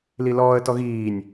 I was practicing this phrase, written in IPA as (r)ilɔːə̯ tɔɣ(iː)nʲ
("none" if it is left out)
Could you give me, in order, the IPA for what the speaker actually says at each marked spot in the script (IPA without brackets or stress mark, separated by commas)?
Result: l, iː